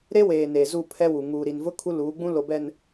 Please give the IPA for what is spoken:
ɾe˦weː˨ neː˨zu˦˨pʰɛ˦wu˨ ŋuː˨ɾi˨nvʊ˦ kʰu˦luː˨˦ɡ͡bũ˦ lo˨bɛ˨n

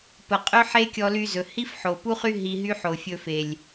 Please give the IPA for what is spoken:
pə˨qʼɵ˦ ħe˦kʲɔ˧ly˧zɵ˨ hi˦fħo˨pu˦χy˦ ɦi˧ɦy˦ ħo˨fʲɵ˧fe˨lʲ

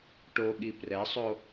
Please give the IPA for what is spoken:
ʈoɠi prɛsˤo

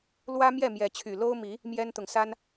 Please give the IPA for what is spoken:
lwä˦mjɛ˥˨ mjɛ˨˦t͡ɕʰy˨˩ lo˦ʊ̯mi˨˦ | mjɛ˦nt̪ʊ˨ŋsa˦n

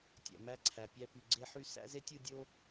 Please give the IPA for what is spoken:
tʲæ̰˨mæ˦ǀʰæ˨ pʲæ˦py˨ ɡ͡ǀe˦ħy˦ sæ̰˦ze˦tʲɯ˦˨ dʲo˦

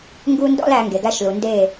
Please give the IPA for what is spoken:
ŋɡu˦ndɔ̰˦l æ˧ŋɡe˨ɡæ˧ʃlu˨ ndeː˦˨

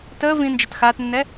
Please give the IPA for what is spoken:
təː vĩnd͡ʒat xaːtnːɛ

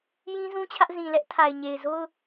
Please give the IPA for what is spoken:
jĩ˦zũ˦t͡ɕʰä˦ʔ zĩ˨lɛ˦ʔtʰa˨ɪ̯ ɲe˨ɪ̯zo˦ʊ̯

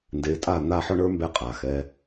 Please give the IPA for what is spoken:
nde˨˦tʼa˦˨ n̪a˦˨ħɔ˦ɳə˞˦ mbɛ˦qʼa˨xɛ˧

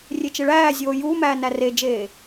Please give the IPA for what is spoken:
rʲet͡ʃeɭæːzʲoː juːmæː næred͡ʒeː

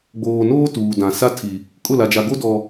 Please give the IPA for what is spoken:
ɡ͡boː˨noː˦ tuː˨dã˨ sa˦tʰi˨ | kʼʊ˦˨la˨d͡ʒa˨ɡo˦ dɔ˨

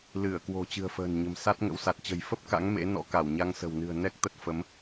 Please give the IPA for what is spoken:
lɨ˧˩ə̯kwo̤˨˩ t͡ɕɨ̤˨˩ə̯fə̤ː˨˩nɲə̤˨˩m sa˦˥t̚ ŋə̰˧˥wsa˨˩t̚t͡ɕə̤˨˩j fə˦˥p̚ka̰˧˥ŋ mḛ˧˥nɔ̰˧˥ka˧˩wɲa˧ŋ sə̤˨˩wnɨ̤˨˩ə̯ nɛ˦˥k̚t̪ə˦˥t̚fə˨˦m

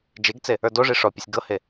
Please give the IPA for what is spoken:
d͡ʒeɡt͡se | ə˞doʐi ʂɔpʲəsʲ ɡɤhe

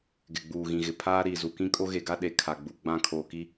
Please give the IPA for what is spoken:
ɡɪ˨ɡ͡buː˨ɣĩ˨ɣɪ˨ pʰaː˦ ɾiː˨zu˨ kĩ˦kʼo˦ɣe˨ɡa˦ ɗe˨ kʰa˨ɡ͡bu˨ ɡ͡bã˦˨kʰoː˨ki˦

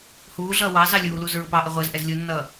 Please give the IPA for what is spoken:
huːɮʌː wɑzɑ lʲuːluz ɹʊpɑʔə ʁʷəːzʔɛz lʲunːʌː

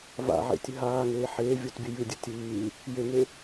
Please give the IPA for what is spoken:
va̰ʕḛtʲɘ ɦaːŋeː ħeːvʲotbʲɘ jɨdʲɘ tʲɨː | jeŋe

